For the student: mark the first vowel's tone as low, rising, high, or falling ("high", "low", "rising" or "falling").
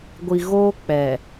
low